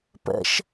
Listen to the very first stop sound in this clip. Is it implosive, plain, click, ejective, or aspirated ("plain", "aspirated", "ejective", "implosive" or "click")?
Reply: plain